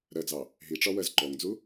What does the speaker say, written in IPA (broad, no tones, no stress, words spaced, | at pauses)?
ɾɜd͡zɑ | ɦiʈ͡ʂɒwɜz ǃɔŋd͡zu